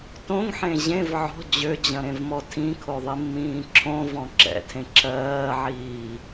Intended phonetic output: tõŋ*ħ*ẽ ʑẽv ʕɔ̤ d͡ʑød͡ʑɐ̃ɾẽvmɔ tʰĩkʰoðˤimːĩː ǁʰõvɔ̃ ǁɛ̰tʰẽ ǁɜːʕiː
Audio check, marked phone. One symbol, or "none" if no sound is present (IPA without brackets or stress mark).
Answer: ħ